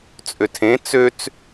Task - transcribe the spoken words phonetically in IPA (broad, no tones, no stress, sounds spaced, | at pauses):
t͡sʼ ø tʰ ẽ t͡s ø t͡s